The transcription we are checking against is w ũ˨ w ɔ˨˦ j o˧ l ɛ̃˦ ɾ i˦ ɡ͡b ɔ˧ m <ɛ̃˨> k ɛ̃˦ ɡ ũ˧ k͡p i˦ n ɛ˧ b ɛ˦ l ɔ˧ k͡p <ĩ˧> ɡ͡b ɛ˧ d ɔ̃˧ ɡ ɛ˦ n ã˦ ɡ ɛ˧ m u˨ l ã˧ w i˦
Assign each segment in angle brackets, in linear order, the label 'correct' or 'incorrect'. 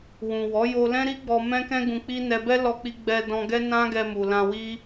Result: incorrect: ɛ̃˦, incorrect: i˧

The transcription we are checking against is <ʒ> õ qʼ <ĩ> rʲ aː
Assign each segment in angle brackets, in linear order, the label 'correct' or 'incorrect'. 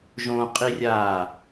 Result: correct, incorrect: i

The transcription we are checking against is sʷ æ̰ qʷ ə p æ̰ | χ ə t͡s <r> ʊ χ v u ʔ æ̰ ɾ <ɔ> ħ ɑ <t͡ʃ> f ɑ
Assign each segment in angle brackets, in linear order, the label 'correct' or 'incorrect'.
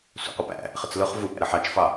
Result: incorrect: l, incorrect: ə, correct

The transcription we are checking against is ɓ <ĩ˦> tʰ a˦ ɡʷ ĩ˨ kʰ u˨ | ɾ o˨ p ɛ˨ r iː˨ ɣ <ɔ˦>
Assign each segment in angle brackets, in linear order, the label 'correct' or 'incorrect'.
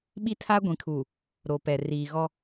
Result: incorrect: i˦, correct

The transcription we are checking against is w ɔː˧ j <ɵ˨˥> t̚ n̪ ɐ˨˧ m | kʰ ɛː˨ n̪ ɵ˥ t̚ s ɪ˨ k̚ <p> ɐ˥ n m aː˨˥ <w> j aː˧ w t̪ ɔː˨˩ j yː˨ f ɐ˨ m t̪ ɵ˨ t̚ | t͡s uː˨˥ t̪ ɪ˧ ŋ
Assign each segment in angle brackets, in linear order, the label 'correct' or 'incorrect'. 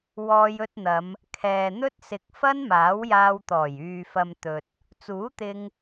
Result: incorrect: ɵ˧, incorrect: f, correct

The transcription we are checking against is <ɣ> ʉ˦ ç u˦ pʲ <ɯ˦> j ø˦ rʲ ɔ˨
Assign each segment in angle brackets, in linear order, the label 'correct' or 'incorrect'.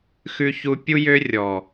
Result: incorrect: x, incorrect: u˦

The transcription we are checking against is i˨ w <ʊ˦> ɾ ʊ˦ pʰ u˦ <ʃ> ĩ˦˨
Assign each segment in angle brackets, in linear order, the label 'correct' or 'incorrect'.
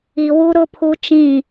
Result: incorrect: u˦, incorrect: t͡ʃ

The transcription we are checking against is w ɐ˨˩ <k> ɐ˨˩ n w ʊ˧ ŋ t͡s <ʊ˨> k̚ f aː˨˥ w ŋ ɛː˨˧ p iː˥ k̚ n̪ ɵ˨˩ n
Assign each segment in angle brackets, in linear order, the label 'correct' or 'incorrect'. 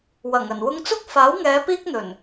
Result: incorrect: ŋ, incorrect: ʊ˥

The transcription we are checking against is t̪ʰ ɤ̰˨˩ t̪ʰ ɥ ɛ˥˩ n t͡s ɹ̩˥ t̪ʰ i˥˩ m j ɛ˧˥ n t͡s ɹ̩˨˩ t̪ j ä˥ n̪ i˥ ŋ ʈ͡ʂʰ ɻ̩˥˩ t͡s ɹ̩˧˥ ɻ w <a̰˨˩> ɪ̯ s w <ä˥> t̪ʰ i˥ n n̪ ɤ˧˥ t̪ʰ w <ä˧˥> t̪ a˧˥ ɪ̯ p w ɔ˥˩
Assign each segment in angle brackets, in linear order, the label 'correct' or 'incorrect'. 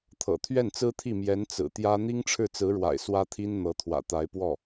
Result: correct, correct, incorrect: ä̰˨˩

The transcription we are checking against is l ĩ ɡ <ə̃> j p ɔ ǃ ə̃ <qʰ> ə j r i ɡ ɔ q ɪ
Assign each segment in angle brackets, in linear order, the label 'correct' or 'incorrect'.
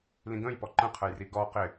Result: correct, correct

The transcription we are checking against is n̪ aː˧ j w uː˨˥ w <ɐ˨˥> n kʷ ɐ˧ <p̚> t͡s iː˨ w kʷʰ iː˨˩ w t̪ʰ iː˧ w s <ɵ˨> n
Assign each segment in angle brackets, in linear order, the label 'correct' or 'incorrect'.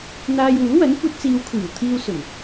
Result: correct, incorrect: t̚, incorrect: ɵ˨˩

